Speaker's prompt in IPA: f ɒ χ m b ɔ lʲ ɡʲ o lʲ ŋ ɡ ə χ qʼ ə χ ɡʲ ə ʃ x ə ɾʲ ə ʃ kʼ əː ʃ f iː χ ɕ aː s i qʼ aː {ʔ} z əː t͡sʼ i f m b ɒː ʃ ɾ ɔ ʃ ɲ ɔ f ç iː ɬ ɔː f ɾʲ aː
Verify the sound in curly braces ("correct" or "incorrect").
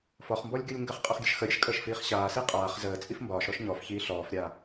incorrect